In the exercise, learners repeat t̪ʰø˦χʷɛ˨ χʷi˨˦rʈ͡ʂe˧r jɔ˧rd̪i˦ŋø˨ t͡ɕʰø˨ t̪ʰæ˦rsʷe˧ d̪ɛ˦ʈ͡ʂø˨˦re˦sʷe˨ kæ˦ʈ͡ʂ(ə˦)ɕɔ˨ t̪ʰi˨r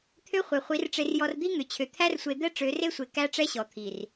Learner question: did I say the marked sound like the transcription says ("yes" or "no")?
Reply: no